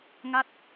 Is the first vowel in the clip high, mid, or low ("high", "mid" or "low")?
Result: low